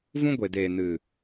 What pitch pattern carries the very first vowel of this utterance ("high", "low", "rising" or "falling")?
high